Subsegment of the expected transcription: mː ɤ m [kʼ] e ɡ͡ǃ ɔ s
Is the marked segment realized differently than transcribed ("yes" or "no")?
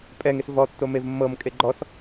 no